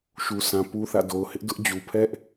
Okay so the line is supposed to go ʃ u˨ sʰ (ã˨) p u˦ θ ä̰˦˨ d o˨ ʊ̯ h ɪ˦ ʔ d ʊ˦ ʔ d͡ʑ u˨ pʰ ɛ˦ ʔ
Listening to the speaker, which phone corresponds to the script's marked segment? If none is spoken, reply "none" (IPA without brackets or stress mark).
ã˨